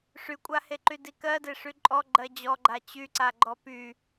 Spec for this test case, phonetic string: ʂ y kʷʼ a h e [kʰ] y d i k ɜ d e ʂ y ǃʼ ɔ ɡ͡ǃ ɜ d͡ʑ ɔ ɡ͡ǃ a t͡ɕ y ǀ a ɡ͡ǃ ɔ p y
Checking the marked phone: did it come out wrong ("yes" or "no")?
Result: yes